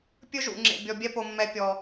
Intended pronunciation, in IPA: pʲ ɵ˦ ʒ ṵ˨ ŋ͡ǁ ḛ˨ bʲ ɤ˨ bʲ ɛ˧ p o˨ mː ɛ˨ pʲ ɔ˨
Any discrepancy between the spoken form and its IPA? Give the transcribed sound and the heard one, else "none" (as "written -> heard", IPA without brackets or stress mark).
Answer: ɤ˨ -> ɔ˨